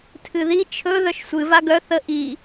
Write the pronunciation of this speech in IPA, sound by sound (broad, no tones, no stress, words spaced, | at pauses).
tʰɨði t͡ʃʰɵ ðœʃsʷɨ vaɡœ θə ʔi